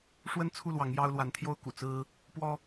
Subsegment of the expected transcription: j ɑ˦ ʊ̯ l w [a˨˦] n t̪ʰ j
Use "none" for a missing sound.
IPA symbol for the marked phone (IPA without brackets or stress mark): a˨˦